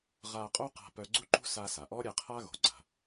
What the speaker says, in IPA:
ʁ a˧ qʼ o˥ q a̤˧ p œ˧ ɡ͡ǀ u˥ ǃ ṳ˥ s a˧ s a˩ ʔ ɔ˥ ɾʲ ɛ˧ qʰ a˥ ɣ o̤˩ ɡ͡ǀ a̤˩

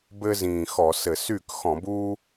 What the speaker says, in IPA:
b ɘː˥ z ĩː˨˩ x ɔ˧˩˧ s ɘ˧˩˧ s y˥˩ k x ɔ̃˧˩˧ b uː˥

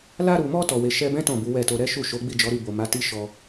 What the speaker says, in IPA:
l a˧ ɾ u˨ m ɔ˧ t ɔ˨ w e˨ ʃ ɛ˧ b ɛ̃˦ t ɔ̃˦˨ b u˨˦ w ɛ˦˨ t o˧ ɾ ɛ˦ ʃ u˦˨ ʃ o˨˦ ɡ͡b i˦˨ d͡ʒ ɔ˨˦ ɾ i˦˨ b o˨ m a˨˦ t i˦ ʃ ɔ˧

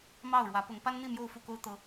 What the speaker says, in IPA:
m ɑ˥˨ ʊ̯ ɻ w ä˨˦ p ʊ˨˦ ŋ p a˦ n n̪ i˥˨ m j o˥˨ ʊ̯ f u˥˨ k o˦ ʊ̯ t̪ ɤ˦

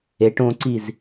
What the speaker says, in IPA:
e ʈ õ ǀ i z

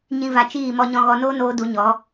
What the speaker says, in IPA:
ɲ ĩ˦ v a˧ t͡ʃ iː˦˨ m ɔ˧ ɲ ɔ̃˧ ɣ ɔ˧ n oː˦ n oː˧ d u˧ ɲ ɔ˨˦

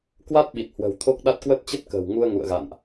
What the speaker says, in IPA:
k w a˦˥ t̚ ɓ i˨˩ t̚ h w ə̤˨˩ w t̪ʰ o˦˥ k̚ ɗ a˦˥ t̚ k w ə˦˥ t̚ t͡ɕ ə˦˥ t̚ k ə̤ː˨˩ w ŋ u˧ ə̯ ŋ ṵ˧˨ ə̯ ɣ a̰˧˨ n ʔ

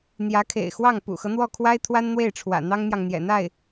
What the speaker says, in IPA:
n̪ j ä˧˥ kʰ ḛ˨˩ ɪ̯ x w ɑ˥˩ ŋ p ṵ˨˩ x ɤ˦ n̪ w ɔ˥˩ kʰ w a˥ ɪ̯ t̪ʰ w a˥ n n̪ w e˥˩ ɪ̯ ʈ͡ʂʰ w ä̰˨˩ n̪ ɑ˥ ŋ n̪ j ɑ˨ ŋ n̪ j ɛ̰˨˩ n̪ a˥˩ ɪ̯

